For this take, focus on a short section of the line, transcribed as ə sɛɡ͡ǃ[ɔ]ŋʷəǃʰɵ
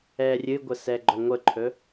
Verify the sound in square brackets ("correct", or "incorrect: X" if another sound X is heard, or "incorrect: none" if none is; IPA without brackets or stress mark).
correct